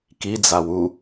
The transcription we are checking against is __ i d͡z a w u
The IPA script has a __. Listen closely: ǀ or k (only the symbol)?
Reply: k